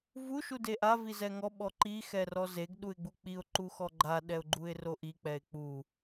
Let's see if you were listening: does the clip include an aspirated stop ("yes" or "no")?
no